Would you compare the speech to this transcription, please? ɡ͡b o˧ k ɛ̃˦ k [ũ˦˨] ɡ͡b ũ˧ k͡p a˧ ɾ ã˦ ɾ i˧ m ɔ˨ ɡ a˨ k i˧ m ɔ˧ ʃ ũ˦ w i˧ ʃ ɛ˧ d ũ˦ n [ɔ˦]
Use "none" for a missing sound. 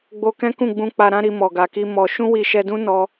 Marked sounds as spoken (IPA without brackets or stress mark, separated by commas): ũ˦˨, ɔ˦